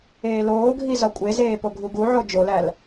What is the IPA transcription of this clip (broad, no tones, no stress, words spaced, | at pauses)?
eːloːɡʱi zɒkʷʼezeː poɡʱuɡuʕo d͡ʒolæl